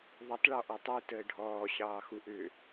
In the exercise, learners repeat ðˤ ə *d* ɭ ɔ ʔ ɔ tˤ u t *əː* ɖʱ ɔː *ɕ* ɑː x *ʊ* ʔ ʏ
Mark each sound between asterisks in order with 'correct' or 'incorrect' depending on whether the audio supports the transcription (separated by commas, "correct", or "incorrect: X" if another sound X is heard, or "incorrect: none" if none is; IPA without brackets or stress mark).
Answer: incorrect: tˤ, correct, correct, incorrect: u